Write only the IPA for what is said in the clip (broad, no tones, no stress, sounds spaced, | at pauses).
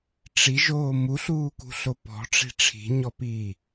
ʈ͡ʂ i ʒ oː m u ɬ uː k ṳ ɬ o p ɔ̤ ʈ͡ʂ i̤ ʈ͡ʂʰ i̤ ɲ ɔ p iː